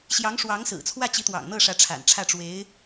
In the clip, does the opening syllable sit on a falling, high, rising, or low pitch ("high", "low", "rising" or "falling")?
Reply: rising